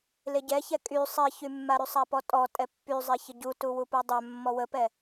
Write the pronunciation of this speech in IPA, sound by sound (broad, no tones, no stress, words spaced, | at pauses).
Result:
leɟɛçɛ kʼy sˤiçymːaɾy sˤapɔtʼɔ tʼɛpːyzˤe çəɟutu wupudˤœ mːɔwəpɛ